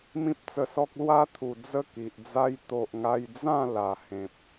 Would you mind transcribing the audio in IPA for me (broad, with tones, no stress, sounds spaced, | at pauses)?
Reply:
m ĩ˦ p̚ t͡s ə˧ s ɔ˦ k̚ l w a˦ t̪ʰ u˨˩ d͡z ə˥˧ k i˨ ʔ d͡z a˦ j t̪ o˨ ʔ ŋ a˧ j d͡z ã˥˧ l a˨˩ h ẽ˨ p̚